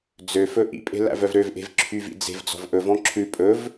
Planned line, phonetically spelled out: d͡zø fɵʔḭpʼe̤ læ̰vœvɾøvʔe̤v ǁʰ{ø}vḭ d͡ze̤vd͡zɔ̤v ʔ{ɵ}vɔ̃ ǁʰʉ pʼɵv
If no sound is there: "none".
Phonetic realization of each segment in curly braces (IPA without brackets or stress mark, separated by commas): y, ɵ